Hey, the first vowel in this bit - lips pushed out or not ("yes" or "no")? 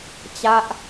no